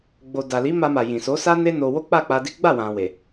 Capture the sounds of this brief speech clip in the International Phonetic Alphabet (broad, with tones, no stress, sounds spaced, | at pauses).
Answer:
ɡ͡b o˨ d a˨ l i˨˦ m a˧ m a˨ j ĩ˨ s o˨˦ s a˦ n e˦ n o˧ w o˦ k͡p a˦˨ k͡p a˧ d i˦ ɡ͡b a˦˨ w ã˨ w e˨